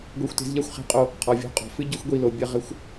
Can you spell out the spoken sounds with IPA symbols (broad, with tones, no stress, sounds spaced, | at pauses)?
ɡʷ e˧ xʷ t e̤˨˦ z ʎ a˦ xʷ χ e̤˧ qʼ o˧ | qʰ ɔ˨ vʲ ɔ̤˧ qʼ ɔ̤˨ f ɨ˦ ɟ ɘ˦ xʷ ɡʷ i˧ l o˨ bʲ ɐ˦˨ ʁ ɘ˦ xʷ